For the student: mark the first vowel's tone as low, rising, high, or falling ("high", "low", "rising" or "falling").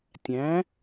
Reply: rising